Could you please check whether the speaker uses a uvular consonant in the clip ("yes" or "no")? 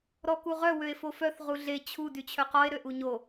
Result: yes